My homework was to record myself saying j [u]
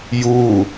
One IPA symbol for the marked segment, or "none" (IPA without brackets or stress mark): u